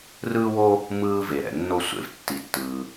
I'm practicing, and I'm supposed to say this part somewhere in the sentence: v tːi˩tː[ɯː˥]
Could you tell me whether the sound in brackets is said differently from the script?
yes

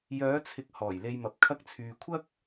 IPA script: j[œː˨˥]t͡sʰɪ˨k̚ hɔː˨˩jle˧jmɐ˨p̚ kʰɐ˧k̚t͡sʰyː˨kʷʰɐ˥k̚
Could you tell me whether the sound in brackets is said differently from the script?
yes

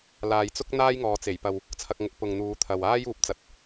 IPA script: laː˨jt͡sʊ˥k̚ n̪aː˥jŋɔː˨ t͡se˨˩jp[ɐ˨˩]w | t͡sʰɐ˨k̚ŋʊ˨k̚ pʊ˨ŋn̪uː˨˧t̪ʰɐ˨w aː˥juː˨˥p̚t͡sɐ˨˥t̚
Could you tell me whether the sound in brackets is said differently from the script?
yes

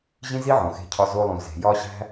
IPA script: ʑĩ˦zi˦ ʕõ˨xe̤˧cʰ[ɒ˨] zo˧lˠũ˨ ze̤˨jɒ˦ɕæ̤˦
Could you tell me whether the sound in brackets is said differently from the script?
yes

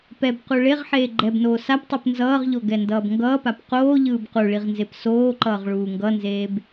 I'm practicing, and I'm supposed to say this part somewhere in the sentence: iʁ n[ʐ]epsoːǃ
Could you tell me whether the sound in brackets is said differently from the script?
yes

